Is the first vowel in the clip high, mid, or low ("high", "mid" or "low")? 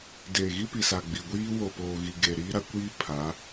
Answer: mid